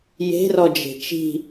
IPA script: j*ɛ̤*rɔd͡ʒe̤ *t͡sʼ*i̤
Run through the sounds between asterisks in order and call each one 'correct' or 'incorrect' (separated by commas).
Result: incorrect, incorrect